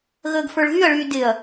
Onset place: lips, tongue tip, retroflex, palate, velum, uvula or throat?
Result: velum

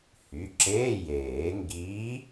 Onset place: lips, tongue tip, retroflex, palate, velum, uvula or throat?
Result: throat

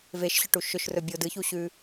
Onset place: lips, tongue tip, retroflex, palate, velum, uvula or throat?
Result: lips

